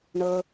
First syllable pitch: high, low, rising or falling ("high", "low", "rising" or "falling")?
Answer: low